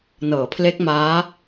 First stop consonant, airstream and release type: aspirated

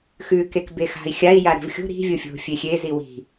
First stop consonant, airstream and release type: plain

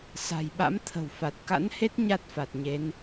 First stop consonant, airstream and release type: implosive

